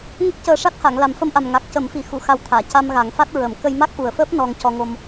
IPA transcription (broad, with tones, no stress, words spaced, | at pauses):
ŋə˦˥k̚cəː˧ʂa˦˥t̚ ha˨˩˨ŋ la˨˩mfə˧mʔa˨˩m ŋa˨˩k̚ cə˨˩˦mfi˨˩ xu˨˩˨ xa˧wt̪ʰaː˨˩˨ ca˧mɣa˨˩˦ŋfa˦˥t̚ ɹə˨˩˦m kə˧jma˦˥k̚ʔu˨˩ə̯fəː˦˥p̚ nɔ˧ŋcɔ˧ŋo˧m